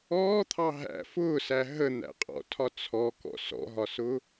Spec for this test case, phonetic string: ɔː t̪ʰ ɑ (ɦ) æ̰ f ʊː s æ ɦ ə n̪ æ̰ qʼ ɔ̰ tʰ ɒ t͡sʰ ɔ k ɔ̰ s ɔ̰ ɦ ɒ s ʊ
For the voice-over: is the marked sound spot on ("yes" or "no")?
yes